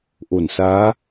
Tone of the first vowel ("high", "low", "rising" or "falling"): low